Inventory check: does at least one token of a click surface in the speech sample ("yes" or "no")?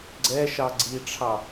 yes